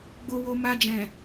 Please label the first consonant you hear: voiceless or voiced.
voiced